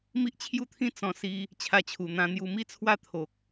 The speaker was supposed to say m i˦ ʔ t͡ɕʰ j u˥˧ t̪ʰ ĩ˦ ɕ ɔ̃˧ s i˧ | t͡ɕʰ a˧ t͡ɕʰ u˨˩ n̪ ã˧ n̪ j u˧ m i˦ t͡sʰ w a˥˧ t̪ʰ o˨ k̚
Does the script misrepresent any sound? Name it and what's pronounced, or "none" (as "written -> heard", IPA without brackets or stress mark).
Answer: ɕ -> t͡s